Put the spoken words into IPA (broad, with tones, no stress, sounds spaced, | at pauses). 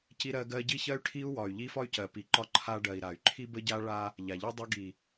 c i˦ ɾ ɜ˦ ɡ ɜ˦ ɟ i˦ ç ɜ˦ y̯ ʈʰ i˦ u̯ w ɒ˨ y̯ ʎ i˦ f ɒ˦ y̯ c ɜ˨ p i˨ ǃ ɒ˦ ǃʰ a˦ ɖ ɜ˨ i̯ ɾ a˨ y̯ ǃʰ i˦ b ə˦ ɟ a˦ ɭ a˦ | ʎ a˨ ʎ i˦ dˤ ə˦ ɡ i˨